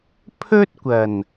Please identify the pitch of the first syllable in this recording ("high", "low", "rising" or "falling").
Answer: high